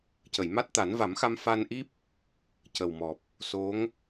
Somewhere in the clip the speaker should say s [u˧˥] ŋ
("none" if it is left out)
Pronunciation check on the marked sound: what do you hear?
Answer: o˧˥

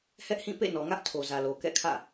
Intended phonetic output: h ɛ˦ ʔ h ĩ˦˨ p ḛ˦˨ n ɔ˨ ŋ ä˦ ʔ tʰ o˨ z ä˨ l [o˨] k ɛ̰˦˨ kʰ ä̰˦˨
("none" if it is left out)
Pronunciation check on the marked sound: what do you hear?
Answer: o˨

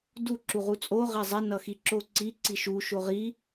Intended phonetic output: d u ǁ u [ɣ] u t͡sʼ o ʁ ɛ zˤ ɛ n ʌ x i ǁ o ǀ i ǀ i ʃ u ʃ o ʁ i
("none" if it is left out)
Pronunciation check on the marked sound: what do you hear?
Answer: ʁ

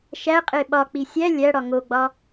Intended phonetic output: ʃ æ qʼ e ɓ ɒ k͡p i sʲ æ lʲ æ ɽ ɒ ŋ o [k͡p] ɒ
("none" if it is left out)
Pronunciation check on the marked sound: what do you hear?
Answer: ɡ͡b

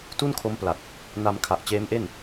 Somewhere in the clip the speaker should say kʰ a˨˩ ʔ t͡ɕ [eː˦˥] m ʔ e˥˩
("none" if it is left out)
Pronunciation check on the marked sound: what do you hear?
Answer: eː˦˥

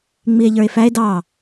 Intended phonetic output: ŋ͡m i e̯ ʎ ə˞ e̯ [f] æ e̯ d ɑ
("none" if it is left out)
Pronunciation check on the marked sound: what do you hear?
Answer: f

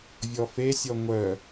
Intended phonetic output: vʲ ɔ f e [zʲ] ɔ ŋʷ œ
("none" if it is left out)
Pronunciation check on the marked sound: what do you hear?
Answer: sʲ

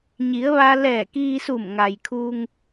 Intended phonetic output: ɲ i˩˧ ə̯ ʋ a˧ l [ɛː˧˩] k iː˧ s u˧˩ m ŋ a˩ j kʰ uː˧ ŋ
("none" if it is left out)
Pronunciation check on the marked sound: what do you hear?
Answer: ɛː˧˩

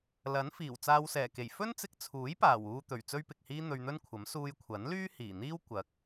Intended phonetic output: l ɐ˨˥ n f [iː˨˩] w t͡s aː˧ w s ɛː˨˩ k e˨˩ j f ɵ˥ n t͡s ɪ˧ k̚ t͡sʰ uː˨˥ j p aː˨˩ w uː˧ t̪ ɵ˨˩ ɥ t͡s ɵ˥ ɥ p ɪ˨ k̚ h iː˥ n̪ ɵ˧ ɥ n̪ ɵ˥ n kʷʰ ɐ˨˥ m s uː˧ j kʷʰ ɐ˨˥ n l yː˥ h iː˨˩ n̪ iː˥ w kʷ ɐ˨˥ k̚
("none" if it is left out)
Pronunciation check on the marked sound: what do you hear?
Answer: iː˨˩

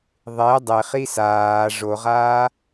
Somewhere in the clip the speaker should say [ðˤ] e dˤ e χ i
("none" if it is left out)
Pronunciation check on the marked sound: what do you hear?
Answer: ðˤ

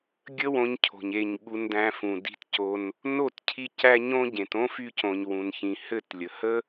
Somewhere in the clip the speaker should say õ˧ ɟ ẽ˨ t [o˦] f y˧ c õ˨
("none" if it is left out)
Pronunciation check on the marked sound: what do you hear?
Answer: õ˦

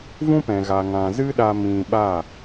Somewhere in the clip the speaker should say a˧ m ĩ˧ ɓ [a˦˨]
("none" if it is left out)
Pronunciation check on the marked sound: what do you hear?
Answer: a˦˨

